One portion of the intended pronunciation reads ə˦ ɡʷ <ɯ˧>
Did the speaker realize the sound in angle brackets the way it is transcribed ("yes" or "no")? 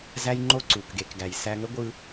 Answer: yes